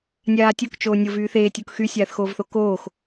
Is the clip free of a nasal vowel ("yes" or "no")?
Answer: yes